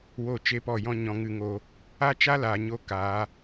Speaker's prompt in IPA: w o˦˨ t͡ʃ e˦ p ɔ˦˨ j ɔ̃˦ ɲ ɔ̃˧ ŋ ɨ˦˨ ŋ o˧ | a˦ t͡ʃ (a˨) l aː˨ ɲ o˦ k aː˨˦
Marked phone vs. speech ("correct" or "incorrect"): incorrect